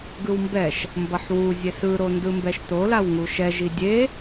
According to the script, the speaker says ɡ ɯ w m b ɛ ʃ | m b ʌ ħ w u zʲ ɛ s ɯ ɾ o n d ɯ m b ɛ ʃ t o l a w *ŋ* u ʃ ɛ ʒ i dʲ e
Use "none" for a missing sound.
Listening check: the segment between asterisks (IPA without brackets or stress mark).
ŋ